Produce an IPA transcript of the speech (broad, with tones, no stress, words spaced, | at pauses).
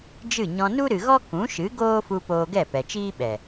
d͡ʒɨ˦˨ɲɔ̃˧ nu˦ɾɨ˨ɣɔ˦ kũ˨˦ʃɨ˨˦ ɡoː˦fu˧ poː˧ɡɛ˦˨pɛ˨t͡ʃiː˦ ɓɛ˨